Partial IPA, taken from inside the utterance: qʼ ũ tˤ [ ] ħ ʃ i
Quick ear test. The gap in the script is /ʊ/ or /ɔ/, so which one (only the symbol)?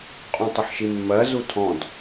ʊ